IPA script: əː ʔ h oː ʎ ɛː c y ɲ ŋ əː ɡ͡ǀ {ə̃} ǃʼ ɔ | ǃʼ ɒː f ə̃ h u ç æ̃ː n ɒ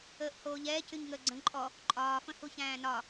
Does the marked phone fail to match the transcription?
no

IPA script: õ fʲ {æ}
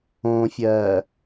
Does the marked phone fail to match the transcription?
yes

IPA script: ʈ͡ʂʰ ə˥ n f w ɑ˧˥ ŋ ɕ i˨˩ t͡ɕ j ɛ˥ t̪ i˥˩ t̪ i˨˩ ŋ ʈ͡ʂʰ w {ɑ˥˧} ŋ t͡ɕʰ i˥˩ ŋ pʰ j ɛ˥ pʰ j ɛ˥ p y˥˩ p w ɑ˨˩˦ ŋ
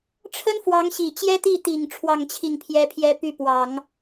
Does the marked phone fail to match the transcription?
no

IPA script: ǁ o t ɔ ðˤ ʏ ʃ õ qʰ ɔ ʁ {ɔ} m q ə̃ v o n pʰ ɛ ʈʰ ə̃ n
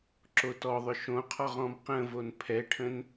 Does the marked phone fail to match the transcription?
yes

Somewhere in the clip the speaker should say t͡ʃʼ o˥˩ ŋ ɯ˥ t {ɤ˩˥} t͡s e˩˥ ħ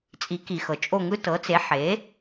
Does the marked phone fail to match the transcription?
no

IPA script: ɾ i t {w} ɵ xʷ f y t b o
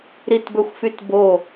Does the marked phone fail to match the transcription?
yes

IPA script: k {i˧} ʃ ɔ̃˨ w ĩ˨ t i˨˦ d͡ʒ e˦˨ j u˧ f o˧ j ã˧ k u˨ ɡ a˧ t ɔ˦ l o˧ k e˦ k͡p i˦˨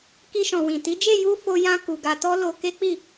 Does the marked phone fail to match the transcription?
no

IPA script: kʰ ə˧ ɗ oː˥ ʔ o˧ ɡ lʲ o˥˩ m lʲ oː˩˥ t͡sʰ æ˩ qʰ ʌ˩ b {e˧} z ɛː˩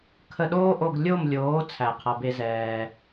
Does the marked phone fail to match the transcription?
no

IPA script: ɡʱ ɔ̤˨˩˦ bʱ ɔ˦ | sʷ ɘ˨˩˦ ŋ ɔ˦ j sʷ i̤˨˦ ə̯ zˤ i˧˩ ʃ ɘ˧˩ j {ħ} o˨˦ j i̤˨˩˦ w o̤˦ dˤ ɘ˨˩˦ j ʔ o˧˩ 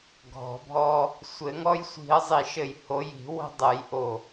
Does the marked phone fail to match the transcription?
yes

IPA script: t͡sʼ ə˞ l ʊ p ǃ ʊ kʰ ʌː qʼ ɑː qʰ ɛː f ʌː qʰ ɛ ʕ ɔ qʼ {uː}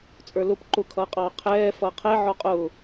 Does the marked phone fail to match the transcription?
yes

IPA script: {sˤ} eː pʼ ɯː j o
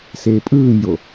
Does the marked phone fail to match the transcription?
yes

